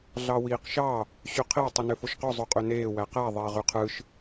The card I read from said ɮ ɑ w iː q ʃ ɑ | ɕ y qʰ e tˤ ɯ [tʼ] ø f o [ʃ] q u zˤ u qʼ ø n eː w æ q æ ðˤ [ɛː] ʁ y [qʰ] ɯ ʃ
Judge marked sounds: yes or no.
no, yes, no, yes

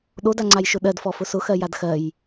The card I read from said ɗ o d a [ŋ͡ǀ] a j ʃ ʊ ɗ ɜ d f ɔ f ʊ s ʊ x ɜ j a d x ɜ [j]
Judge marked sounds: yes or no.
yes, yes

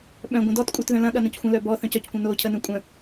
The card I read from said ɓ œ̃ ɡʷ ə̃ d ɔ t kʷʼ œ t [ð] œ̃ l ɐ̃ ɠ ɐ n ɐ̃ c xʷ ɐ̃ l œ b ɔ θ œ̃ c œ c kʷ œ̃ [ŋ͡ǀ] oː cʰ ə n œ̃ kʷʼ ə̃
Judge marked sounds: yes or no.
yes, no

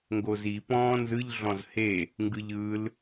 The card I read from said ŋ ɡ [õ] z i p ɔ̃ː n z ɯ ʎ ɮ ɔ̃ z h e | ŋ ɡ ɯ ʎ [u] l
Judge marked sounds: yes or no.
no, no

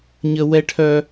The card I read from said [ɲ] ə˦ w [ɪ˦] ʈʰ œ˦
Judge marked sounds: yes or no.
yes, no

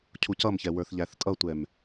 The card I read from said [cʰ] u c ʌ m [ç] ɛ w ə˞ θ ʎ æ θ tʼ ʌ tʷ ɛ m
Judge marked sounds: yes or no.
yes, yes

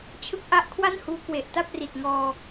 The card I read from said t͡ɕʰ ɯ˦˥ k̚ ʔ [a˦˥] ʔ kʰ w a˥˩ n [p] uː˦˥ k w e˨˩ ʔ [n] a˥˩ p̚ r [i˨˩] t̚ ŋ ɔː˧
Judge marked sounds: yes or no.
yes, no, no, yes

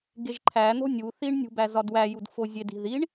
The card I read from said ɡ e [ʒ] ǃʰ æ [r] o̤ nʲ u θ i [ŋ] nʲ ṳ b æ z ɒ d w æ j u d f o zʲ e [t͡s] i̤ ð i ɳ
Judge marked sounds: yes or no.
yes, no, no, no

